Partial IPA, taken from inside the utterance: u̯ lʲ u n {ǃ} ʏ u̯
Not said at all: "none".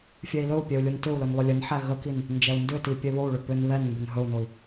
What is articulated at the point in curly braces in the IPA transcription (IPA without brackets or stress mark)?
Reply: t